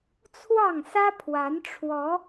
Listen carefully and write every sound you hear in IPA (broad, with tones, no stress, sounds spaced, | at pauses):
t͡sʰ w ɑ˥˨ ŋ s ä˦ pʰ w a˨˦ n ʈ͡ʂʰ w ɔ˨˦